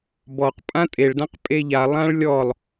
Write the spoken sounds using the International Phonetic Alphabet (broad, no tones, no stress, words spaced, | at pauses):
bɔq pʼãtʼeɭdãq pʼeʎa lˠãɭlʲɔlˠ